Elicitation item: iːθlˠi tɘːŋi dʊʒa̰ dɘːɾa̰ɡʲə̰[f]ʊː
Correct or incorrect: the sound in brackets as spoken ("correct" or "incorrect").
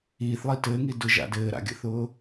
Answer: incorrect